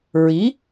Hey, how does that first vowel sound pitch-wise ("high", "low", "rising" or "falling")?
rising